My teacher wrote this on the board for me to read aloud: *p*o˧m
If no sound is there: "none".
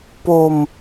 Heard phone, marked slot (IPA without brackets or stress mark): p